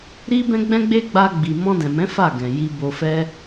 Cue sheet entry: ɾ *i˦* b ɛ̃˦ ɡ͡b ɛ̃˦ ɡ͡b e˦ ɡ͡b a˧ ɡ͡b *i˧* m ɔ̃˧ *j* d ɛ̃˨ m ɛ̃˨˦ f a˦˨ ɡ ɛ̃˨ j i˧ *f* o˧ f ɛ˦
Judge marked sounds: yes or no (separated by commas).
yes, no, no, no